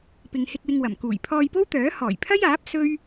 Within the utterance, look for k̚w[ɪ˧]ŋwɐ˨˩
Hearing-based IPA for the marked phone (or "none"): ɪ˧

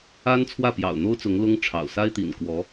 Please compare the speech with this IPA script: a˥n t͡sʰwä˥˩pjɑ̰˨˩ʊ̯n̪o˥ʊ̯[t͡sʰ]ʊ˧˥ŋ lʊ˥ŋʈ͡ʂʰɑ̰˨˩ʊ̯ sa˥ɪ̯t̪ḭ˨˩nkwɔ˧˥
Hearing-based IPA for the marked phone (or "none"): t͡s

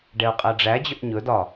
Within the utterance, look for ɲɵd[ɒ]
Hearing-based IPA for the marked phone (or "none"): ɒ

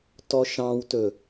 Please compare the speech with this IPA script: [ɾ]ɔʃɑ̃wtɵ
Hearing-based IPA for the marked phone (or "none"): t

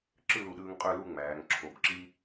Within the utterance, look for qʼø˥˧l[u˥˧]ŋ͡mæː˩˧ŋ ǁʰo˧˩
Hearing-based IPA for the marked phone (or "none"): u˥˧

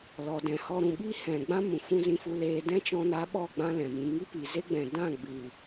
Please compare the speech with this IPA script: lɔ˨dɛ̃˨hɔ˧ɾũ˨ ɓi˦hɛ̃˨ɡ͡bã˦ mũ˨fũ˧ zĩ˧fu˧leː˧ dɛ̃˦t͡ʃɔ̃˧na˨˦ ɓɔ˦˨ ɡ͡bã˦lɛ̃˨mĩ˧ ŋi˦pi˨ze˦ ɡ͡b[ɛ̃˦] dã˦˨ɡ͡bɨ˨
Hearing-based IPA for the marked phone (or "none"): ɛ̃˨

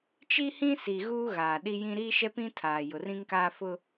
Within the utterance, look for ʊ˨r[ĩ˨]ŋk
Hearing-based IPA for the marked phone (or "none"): ĩ˦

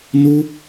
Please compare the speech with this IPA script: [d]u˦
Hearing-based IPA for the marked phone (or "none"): n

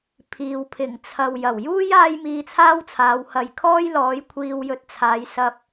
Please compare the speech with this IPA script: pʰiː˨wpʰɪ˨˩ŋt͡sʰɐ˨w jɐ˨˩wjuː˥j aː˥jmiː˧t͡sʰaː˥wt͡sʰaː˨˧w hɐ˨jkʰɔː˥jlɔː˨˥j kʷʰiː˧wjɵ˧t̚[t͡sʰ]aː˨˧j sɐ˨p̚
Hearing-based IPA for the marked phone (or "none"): t͡sʰ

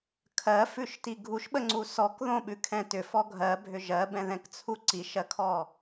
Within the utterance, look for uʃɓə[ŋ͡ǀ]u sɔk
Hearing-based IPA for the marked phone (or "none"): ŋ͡ǀ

